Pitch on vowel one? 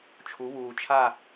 rising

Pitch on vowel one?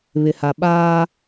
low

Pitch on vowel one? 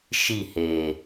falling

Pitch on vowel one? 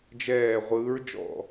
falling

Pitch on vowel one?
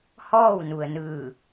falling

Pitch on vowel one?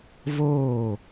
falling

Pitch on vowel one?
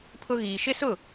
high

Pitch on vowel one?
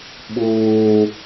low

